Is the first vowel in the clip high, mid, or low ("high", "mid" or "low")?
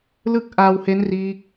high